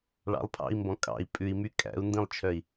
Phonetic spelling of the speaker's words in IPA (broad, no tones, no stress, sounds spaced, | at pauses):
ɭ ɑ̰ lˠ pʰ ɑ̰ i̯ m b ɔ̃ kʼ ɑ̰ i̯ pʼ ʉ i̯ m y kʼ æ̰ u̯ n d ĩ lˠ t͡ʃʰ œ i̯